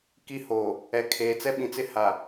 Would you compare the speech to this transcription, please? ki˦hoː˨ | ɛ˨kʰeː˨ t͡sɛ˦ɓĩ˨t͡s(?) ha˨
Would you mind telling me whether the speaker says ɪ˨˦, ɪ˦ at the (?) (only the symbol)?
ɪ˦